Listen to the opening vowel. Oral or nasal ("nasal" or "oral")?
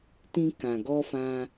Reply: nasal